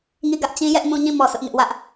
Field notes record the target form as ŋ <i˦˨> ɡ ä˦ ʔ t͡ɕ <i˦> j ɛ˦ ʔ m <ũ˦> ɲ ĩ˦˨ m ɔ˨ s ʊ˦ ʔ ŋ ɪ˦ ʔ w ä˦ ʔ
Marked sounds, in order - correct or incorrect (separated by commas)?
correct, incorrect, correct